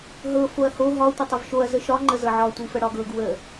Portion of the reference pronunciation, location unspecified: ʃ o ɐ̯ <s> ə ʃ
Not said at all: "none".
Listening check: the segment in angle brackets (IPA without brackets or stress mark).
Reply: z